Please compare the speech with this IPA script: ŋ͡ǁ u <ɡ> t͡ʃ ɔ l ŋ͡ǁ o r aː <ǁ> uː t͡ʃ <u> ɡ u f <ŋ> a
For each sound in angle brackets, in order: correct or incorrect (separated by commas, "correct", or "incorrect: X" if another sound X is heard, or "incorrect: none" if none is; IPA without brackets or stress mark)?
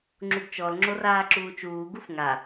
correct, correct, incorrect: uː, correct